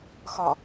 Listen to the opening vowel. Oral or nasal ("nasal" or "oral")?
oral